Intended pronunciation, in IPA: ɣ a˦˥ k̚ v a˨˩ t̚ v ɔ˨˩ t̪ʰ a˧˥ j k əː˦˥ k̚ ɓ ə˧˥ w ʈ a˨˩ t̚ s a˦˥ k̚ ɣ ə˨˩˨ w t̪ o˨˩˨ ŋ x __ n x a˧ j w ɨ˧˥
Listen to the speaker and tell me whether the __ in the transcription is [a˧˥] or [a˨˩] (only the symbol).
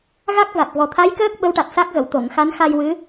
a˧˥